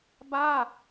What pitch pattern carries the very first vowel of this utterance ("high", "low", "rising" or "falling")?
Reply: falling